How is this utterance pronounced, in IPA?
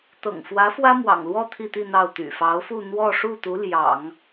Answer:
t̪ ɤ̰˨˩ ŋ f w ä˧˥ f w ä˥ m w ɑ̰˨˩ ŋ l w ɔ˥˧ t̪ʰ i˥˧ t̪ i˥˧ n̪ ɑ˥˩ ʊ̯ t̪ y̰˨˩ f ɑ˧˥ ʊ̯ f u˥˧ n̪ w ɔ˥˧ ʂ u˥˩ t̪ u˧˥ l j ɑ̰˨˩˦ ŋ

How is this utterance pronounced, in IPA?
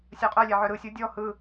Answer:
sʲ ɜ qʼ œ lʲ ɛ ʕ œ ɾ ɯ sʲ o dʲ ɔ h ɯ

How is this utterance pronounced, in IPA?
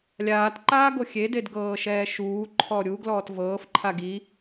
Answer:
lʲ aː t ǃ aː ɡ o xʲ e d e d ɡ ɤː ʃ ɛː ʃ uː ǃʰ ɔ ɾʲ u ɡ l ɔː t v ɤː f ǃʰ a ɡ i

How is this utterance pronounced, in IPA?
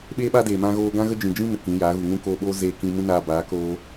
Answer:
ɓ eː˦ ɓ a˦ d eː˨ m ã˧ ɣ oː˧ ɡ ã˦ ɣ ə˦ d͡ʒ ĩ˨ d͡ʒ ĩ˦ n ə˨ k ĩ˨˦ j aː˨˦ ɣ u˨ ŋ ũ˦ k oː˧ ɓ oː˦ z eː˧ k ĩ˧ m ũ˦ n aː˧ b aː˨˦ k oː˧

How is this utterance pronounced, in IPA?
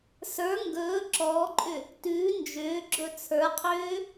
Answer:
s ə˞ ŋ ɡ ɵː ǁ ɔː ǃʼ ʏ | t ʉː n d͡ʒ ʏː ɡ͡ǁ ɵ t͡sʰ ə˞ qʰ ʏː

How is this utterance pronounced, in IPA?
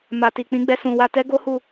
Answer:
m a˨ t i˨ k͡p ĩ˨˦ ɡ͡b ɛ˧ s ũ˨ w a˧ t ɛ˦ ɡ o˦ h u˦˨

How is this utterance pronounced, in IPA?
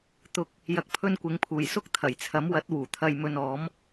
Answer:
t̪ ʊ˨ k̚ | j ɐ˧ k̚ pʰ ɵ˥ n kʷ ɪ˨˥ ŋ pʰ uː˨˩ j s ʊ˥ k̚ t̪ʰ ɐ˨˩ j t͡sʰ ɐ˨˥ m w ɐ˨˥ t̚ w uː˨˩ t̪ʰ ɐ˧ j m ɵ˧ n ɔː˨˥ m

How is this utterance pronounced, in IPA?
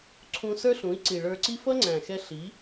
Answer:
ǀʰ ũ˧ s ə˞˦ ɬ ũ˨˦ i̯ ǀ i˨ ɭ ə˞˧ ǀ i˦ f ʌ˦ ŋ͡ǀ æ̃˨ x ɛ˧ ɬ i˨˦

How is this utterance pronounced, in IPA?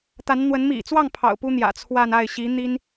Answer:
t̪ a˧˥ n n̪ w ə˧˥ n m ḭ˨˩ t͡s w ɑ˥˩ ŋ pʰ ɑ̰˨˩ ʊ̯ p u˥ n̪ j ä̰˨˩ t͡sʰ w a˥˧ n a˥˩ ɪ̯ ɕ i˧˥ n̪ i˥ n

